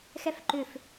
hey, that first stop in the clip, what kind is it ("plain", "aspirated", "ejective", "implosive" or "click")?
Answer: click